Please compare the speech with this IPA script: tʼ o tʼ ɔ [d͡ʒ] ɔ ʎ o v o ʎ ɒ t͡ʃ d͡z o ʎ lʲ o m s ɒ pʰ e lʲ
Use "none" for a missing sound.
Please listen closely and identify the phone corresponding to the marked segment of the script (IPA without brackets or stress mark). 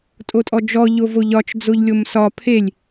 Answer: d͡ʒ